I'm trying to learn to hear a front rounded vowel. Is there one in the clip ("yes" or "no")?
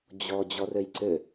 yes